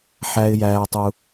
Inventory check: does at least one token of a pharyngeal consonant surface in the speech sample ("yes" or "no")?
yes